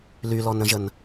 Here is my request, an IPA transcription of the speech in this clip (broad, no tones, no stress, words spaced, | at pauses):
lylɔnɾə̃ʒən